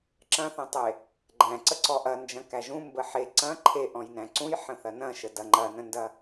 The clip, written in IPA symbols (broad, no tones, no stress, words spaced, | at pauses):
ǁɐ̃θɐ̃tˤe | ɡ͡ǃæ̃ǀə ǀɔʔɐnd͡ʒɐ̃ kæʒũ mbəħe ǀɐ̃ ǃʰe ʔɔ̃jnæ̃ǀũj ħə̃θɐnɐ̃ʃə dɐŋ͡ǃɐnə̃ndɐ